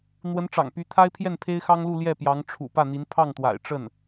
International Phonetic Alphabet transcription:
n̪ w ə˧˥ n ʈ͡ʂ ɑ̰˨˩ ŋ p y˧˥ t̪ʰ a˥ ɪ̯ pʰ j ɛ˥˩ n pʰ e˥ ɪ̯ x ɑ˥ ŋ l u˥˧ l j ɛ˥˩ p j ɑ˧˥ ŋ ʈ͡ʂʰ ṵ˨˩ p ä˥˩ n̪ i˧˥ n pʰ ɑ˥˩ ŋ t̪ w a̰˨˩ ɪ̯ ʈ͡ʂ ə˥˩ n

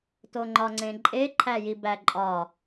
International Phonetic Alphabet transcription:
t o ŋ͡ǃ ɒ ŋ͡ǀ ẽ ǃʼ e ǃʰ æ j i b æ ǃʼ ɒ

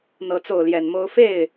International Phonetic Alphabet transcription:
n̪ ɤ˧˥ t͡s o˥˩ ʊ̯ l j ɛ˨˩ n m o˥ ʊ̯ f e˥˩ ɪ̯

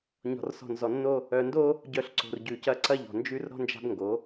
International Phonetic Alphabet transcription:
ɲ ɔ̤˨ r s ɔ̤˨ n z ɔ˨ nː o˦ | œ˨ n d o˦ | ɟ œ˨ ɬ ǀ o̤˨ r ɟ ʉ˨ c ɐ˦ ǀ ɐ˦ ʎ ɔ̤˨ n d͡ʒ ʉ˦ r ɾ ɔ̤˦ n d͡ʒ a̤˦ b ŋ ɡ o˨˦

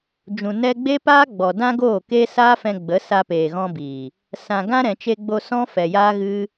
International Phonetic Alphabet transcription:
d͡ʒ ũ˨ n ɛ˧ ɡ͡b e˦ p aː˦ ɡ͡b ɔ˨ d ã˦ ɡ oː˦˨ k e˦ s aː˦ f ɛ̃˧ ɡ͡b ə˨˦ s a˧ p eː˨ ɣ ɔ̃˧ b iː˨ | s ã˨ ɡ ã˦ ɾ ɛ̃˨ t͡ʃ e˧ ɡ͡b o˧ s ɔ̃˦ f ɛ˨ j aː˦ ɣ ɨ˦

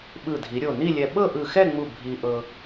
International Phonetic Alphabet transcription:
ɓ ɯ˧˩ dʱ i˩˧ ɾʲ o˧˩ n i˥˧ lʲ ɛ˧ ɓ ɤ˥˧ ʔ ɯ˧˩ x ɛ˥˧ ŋ͡m u˧˩ bʱ i˧ ʔ ɤ˧

